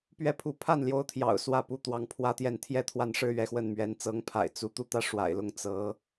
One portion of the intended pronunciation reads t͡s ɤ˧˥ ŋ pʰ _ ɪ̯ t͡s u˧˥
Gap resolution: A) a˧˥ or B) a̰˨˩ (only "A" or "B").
B